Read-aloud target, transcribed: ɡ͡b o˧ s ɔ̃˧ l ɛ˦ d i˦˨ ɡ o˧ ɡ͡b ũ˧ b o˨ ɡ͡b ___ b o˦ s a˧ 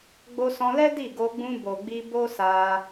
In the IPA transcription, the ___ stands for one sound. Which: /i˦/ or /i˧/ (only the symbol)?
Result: i˧